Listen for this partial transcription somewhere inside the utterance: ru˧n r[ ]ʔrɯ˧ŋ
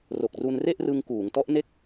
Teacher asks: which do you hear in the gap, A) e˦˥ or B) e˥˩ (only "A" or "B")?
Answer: B